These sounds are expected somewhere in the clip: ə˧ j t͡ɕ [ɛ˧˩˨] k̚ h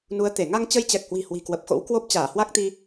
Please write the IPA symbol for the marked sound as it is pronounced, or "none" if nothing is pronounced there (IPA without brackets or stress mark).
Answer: ɛ˨˩